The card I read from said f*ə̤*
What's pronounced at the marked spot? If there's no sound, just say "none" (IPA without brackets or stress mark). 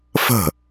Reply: ə̤